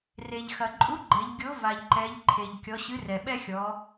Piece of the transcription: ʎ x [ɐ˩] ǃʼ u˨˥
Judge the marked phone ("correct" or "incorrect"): correct